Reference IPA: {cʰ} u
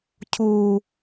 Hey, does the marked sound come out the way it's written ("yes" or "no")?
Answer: yes